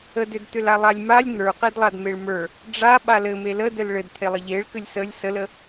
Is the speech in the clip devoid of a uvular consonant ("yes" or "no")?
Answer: no